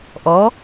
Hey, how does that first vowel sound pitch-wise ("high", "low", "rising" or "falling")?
rising